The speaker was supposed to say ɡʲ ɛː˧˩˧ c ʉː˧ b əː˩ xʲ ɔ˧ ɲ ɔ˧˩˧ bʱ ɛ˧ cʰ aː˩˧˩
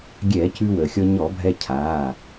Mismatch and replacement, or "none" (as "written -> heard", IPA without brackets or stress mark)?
b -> w